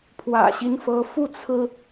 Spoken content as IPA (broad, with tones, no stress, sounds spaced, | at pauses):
pʰ w ä̰˨˩ ɕ i˦ n f ɤ˨˦ f u˥˨ t͡sʰ ɹ̩˦